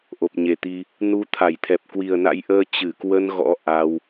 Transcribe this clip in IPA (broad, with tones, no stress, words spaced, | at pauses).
ʔo˨˩p̚ɲe˨˩t̪i˧ | nu˨˦t̪ʰa˧˩jt̪ʰɛ˨˩p̚ kwi˨˩ə̯na̰˧˥jʔəː˧ t͡ɕɨ˧˩kwə˧n ɣɔ̰˧˥ ʔa˧w